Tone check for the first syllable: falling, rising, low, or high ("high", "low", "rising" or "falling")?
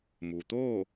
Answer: low